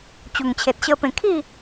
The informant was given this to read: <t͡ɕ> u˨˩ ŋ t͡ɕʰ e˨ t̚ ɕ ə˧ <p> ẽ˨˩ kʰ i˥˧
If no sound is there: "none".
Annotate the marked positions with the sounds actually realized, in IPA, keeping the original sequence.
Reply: t͡ɕ, p

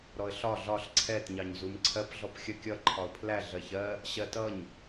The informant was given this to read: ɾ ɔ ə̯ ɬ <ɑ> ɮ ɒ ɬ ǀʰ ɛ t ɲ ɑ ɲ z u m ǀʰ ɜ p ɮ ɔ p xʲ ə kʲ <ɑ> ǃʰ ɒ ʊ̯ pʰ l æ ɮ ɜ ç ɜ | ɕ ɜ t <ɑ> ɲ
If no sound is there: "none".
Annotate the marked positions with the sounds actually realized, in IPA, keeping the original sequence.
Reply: ɒ, ʌ, ʌ

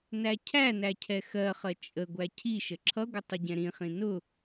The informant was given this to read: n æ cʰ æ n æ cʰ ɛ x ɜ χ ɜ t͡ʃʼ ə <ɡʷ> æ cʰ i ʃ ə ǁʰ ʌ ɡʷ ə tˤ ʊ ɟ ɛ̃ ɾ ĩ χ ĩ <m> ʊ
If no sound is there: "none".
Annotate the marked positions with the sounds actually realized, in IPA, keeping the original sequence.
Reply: ɡʷ, n

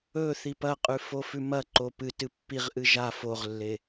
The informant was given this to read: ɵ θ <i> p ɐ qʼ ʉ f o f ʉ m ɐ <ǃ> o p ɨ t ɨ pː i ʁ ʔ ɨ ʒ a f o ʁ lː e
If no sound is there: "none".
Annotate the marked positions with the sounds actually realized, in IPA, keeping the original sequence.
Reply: i, ǃ

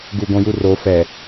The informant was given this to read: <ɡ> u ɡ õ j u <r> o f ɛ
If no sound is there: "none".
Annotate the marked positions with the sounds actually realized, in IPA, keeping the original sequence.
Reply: ɡ, r

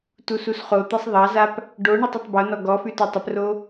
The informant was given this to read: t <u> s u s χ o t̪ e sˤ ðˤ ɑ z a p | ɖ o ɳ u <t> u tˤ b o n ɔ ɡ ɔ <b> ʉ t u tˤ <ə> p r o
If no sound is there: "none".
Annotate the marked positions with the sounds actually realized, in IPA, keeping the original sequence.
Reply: u, tˤ, f, ə

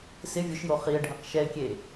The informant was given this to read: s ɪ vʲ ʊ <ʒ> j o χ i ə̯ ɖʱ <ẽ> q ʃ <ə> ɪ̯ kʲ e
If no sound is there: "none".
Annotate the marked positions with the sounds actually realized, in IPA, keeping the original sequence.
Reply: ʃ, ẽ, ɛ

